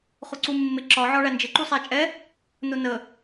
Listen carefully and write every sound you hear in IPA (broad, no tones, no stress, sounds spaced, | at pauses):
χ ʊ ǀ u mː ɪ ǁ ɒ ʕ ɒ ɭ æ n d͡ʒ ɪ ǃ u sˤ æ t͡ʃʼ ɛ | n ʊ n ə